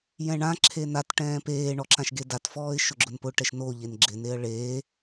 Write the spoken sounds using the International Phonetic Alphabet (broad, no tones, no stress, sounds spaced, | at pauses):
j ɛ̃ ɳ ã ǁʰ e n a t ʈ ɛ̃ː p eː ɳ ɔ ǁ ã ʃ ɡ e d a t f ɔː ɪ̯ ʃ ʊ ɡ͡ǁ ʊ n p ʊ ʈ ɛ ʃ n o ʎ e n ɡ͡ǁ ɪ n e ə̯ ɭ eː